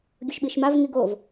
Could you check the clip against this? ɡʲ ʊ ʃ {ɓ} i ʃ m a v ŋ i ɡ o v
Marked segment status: correct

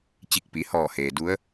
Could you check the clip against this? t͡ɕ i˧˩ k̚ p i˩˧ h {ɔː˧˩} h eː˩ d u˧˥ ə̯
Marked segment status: correct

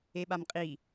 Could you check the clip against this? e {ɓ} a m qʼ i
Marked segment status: correct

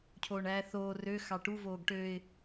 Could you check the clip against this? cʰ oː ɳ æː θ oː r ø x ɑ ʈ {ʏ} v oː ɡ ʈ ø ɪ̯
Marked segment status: incorrect: u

